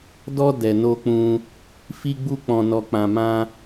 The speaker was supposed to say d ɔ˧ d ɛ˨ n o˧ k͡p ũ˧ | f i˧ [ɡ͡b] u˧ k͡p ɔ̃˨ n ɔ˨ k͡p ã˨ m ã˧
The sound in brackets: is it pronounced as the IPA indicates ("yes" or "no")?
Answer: yes